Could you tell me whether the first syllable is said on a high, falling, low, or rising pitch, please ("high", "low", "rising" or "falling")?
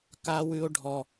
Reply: high